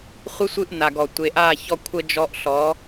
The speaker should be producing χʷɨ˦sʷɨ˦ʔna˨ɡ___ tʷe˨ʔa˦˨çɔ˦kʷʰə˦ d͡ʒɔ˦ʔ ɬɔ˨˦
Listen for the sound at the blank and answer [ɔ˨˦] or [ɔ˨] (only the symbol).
ɔ˨